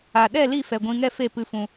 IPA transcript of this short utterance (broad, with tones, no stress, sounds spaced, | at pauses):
a˨ ɗ ɛ˦˨ l i˦˨ f ɛ˨ ɡʷ ĩ˧ ŋ ɛ˦ f e˦˨ p ɨ˧ f ũ˧